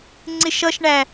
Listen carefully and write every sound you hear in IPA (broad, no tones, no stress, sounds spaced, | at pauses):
ŋ͡ǀ ɪ ʃ ʌ ʃ ɳ æ